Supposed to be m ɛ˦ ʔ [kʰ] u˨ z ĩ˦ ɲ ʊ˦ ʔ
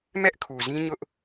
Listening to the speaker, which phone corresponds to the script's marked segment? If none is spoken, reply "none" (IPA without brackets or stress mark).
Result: kʰ